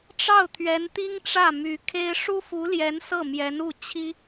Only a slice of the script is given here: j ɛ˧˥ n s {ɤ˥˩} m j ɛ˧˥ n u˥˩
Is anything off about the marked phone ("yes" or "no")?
no